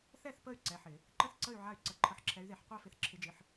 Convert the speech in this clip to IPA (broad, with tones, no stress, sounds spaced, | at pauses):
θ ɛ˥˨ θ p ə˥˨ y̯ ǀ ɛ˩˧˩ ħ ɪ˧˩˧ | ǃ ə˥˨ θ ǀ ə˥˨ y̯ ʕ a˥˨ y̯ ǀ ə˧˩˧ ǃʰ ə˨˦ ħ ǁʰ ɛ˨˦ y̯ ð e˧˩˧ ħ qʷ æ˥˨ f ɪ˨˦ θ ǁʰ ɪ˨˦ d͡ʒ ɪ˩˧˩ ħ